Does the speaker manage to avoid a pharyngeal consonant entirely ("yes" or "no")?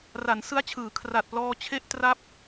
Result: yes